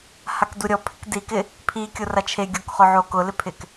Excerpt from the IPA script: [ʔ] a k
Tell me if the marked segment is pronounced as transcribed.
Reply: no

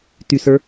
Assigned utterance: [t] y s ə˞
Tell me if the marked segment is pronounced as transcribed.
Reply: yes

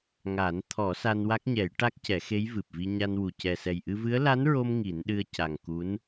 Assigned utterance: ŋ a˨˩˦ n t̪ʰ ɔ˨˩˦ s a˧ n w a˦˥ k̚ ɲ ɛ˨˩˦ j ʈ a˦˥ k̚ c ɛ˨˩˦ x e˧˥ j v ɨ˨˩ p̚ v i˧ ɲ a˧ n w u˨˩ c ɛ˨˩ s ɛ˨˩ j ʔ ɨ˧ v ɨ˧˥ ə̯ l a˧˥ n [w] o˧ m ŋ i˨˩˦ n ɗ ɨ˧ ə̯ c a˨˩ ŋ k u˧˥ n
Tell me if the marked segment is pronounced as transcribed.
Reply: no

